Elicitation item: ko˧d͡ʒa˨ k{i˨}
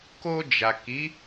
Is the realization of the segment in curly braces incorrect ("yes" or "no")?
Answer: yes